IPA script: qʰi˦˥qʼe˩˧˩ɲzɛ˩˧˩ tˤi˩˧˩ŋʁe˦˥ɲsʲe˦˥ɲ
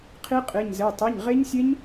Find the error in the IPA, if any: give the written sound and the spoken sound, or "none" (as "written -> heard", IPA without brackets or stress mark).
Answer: ŋ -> ɲ